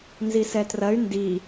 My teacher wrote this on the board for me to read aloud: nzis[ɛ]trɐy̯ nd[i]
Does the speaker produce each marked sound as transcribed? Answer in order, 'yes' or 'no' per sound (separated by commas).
yes, yes